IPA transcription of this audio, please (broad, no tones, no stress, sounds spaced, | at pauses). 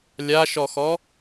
lʲ a ʃ ɔ x ɔ